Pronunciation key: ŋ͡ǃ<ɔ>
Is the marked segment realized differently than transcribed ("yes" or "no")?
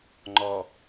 no